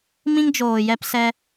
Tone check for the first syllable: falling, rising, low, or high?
high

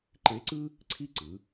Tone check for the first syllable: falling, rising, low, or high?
rising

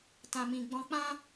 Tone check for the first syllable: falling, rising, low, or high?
low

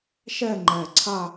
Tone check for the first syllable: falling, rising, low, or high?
falling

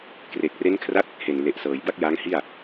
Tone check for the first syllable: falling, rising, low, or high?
low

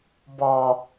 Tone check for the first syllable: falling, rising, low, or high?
low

